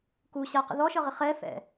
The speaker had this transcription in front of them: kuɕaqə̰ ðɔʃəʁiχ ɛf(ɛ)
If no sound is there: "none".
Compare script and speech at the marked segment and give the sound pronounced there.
ɛ̰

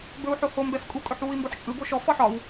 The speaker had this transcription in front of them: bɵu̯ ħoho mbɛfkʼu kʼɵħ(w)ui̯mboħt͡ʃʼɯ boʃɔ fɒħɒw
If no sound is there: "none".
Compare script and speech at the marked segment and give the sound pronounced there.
w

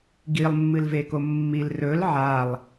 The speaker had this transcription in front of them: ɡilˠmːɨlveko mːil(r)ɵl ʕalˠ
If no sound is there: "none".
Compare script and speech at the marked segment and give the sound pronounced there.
r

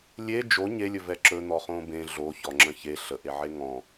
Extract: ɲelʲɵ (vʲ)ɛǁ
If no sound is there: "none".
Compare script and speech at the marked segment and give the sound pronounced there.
v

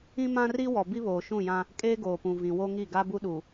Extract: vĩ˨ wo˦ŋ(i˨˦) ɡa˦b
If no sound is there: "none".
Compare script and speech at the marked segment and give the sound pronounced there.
i˦˨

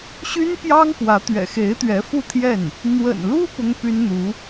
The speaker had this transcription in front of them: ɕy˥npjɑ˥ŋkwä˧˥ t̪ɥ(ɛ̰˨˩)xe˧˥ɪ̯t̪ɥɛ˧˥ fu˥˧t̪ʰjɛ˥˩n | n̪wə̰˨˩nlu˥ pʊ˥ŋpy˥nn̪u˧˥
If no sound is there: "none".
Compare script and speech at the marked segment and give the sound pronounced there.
ɛ̰˨˩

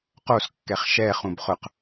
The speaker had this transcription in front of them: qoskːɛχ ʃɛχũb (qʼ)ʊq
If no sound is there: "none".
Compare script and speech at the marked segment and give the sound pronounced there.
χ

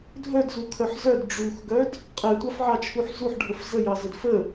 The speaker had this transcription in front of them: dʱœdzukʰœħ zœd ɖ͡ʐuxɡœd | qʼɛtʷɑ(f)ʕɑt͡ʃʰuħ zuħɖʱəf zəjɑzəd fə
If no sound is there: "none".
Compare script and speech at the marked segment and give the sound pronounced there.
f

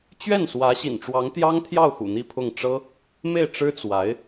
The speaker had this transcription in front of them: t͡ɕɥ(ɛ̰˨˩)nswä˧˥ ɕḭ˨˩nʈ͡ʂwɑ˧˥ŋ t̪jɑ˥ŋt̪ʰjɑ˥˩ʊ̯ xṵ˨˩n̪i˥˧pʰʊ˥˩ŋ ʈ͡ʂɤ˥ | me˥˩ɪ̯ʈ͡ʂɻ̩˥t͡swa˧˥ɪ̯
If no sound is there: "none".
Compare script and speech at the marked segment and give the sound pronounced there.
ɛ˥˩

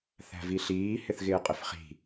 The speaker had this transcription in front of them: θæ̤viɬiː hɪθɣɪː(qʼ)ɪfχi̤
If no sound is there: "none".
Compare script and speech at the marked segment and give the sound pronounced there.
qʼ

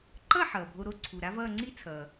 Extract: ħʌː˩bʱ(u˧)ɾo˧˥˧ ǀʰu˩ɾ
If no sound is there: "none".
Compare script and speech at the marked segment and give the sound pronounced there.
o˧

